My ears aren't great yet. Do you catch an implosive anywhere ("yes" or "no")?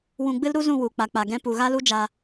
no